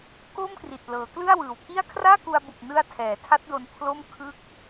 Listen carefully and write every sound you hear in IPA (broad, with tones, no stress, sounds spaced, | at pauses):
k o˥˩ m k r i˨˩ t̚ l ɤː˩˦ k l ɯ˥˩ a̯ w ɯː˨˩ w k i˥˩ a̯ kʰ r aː˥˩ k u˧ a̯ b u˨˩ k̚ n ɯ˧ a̯ tʰ ɛː˩˦ tʰ a˦˥ t̚ d o˧ n pʰ l o˥˩ m kʰ ɯ˥˩ k̚